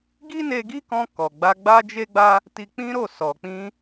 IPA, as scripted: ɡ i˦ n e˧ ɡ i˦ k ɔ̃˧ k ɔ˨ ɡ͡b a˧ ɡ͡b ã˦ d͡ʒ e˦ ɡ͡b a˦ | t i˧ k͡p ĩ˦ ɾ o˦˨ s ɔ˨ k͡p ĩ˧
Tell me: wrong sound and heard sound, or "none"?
ã˦ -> a˦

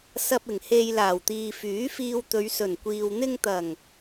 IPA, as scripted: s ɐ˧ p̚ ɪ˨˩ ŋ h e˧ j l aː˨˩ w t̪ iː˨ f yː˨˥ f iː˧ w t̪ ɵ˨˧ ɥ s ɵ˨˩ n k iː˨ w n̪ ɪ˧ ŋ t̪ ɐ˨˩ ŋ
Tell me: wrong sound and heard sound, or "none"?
k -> kʷ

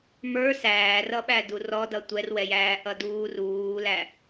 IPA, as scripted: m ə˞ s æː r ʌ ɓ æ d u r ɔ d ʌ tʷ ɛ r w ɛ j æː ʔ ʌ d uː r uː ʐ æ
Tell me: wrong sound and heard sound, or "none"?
ʐ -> l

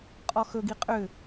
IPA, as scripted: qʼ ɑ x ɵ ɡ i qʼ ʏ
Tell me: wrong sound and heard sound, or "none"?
ɑ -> ɔ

